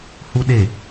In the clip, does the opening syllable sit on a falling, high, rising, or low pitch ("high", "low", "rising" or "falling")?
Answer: high